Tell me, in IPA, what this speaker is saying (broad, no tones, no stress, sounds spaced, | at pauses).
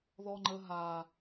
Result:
ð ɔ ŋ͡ǃ ə ɦ a